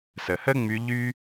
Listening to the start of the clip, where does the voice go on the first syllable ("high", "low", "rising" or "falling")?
low